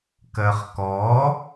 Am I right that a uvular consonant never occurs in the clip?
no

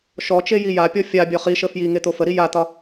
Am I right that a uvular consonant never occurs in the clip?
no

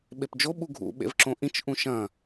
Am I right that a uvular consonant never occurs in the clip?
yes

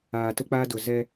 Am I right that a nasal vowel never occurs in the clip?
yes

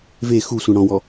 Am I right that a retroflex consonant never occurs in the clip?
no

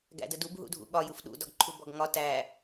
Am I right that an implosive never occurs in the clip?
no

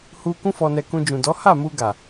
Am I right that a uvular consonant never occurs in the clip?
yes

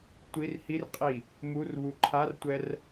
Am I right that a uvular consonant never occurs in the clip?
no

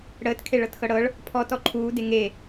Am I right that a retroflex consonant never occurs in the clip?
no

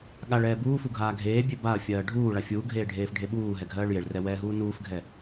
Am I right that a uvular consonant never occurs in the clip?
yes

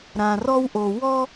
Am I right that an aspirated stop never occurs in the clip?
yes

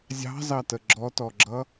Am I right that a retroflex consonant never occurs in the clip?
yes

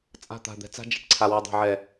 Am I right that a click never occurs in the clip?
no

